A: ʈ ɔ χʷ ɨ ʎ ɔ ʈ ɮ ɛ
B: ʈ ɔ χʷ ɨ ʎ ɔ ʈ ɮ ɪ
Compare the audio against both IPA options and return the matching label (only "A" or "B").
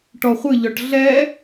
A